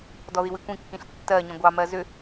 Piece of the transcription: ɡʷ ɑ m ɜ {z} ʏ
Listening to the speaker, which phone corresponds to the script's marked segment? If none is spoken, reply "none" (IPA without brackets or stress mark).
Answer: z